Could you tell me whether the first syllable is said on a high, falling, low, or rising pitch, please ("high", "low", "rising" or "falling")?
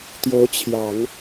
rising